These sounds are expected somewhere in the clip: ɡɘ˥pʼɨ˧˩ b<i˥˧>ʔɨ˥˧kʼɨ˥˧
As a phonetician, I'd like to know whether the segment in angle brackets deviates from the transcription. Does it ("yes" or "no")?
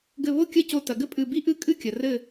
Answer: no